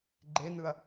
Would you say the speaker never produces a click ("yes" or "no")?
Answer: no